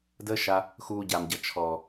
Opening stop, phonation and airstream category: plain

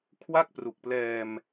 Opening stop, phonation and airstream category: aspirated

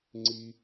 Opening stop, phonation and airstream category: click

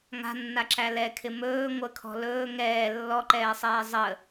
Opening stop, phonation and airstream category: click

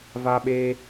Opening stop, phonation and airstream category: implosive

